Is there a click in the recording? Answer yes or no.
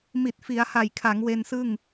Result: no